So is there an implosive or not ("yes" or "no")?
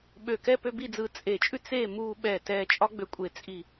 yes